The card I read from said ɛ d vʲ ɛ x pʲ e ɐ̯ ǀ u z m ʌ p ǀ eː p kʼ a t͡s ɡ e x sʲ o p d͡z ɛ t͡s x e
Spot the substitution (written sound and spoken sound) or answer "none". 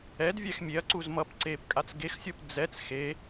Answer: pʲ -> mʲ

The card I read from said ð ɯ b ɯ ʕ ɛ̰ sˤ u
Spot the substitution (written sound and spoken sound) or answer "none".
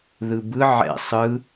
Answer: u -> ɯ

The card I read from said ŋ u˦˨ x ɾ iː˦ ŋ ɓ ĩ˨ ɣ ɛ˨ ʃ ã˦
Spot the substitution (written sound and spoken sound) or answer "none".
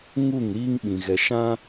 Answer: x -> ŋ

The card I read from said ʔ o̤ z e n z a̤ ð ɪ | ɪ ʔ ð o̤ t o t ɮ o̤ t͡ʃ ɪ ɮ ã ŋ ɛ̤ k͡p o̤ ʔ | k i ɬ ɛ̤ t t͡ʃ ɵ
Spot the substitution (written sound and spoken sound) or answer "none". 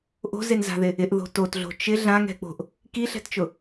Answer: ɵ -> ʊ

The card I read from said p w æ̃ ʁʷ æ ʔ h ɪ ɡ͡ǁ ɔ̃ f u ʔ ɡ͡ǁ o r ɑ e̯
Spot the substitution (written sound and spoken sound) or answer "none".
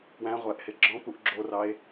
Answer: f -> p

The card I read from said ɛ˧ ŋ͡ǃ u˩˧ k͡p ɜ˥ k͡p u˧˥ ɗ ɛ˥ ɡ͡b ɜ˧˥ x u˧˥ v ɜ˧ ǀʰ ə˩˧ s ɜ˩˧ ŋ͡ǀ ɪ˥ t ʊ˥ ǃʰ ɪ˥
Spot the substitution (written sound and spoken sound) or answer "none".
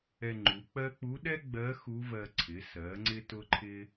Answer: ə˩˧ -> ɪ˩˧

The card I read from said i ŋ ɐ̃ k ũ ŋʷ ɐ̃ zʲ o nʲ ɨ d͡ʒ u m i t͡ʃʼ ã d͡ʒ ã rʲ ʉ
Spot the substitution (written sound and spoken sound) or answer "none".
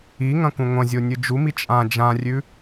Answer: none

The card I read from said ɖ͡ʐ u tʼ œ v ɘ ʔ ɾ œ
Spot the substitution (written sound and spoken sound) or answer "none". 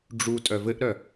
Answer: none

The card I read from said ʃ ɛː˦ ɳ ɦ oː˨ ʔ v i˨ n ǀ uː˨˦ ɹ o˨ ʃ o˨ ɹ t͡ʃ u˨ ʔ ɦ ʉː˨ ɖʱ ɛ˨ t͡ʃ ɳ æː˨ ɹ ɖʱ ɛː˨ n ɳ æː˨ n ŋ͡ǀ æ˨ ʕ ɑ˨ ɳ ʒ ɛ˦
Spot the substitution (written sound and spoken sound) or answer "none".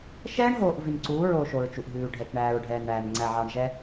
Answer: none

